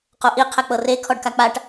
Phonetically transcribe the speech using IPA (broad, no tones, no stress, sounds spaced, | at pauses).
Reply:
q o ʔ i qʰ ɛ k͡p ɤ r e kʰ ɔ ɖ k a k͡p a ʈ